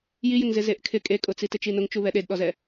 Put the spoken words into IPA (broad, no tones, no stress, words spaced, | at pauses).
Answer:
jijɪŋzɪ zeʔkʰɪ kʼekʼʊt͡si tɪt͡ʃinʊŋt͡ʃu βɛɗedɗɔzɛ